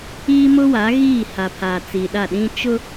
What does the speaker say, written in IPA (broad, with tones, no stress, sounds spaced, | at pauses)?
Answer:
iː˦ m ʊ˦ w a˨˦ ɣ iː˦˨ h a˨ pʰ aː˨ t͡s i˨ ɗ a˦˨ ɗ ĩ˦ t͡ʃ ʊ˦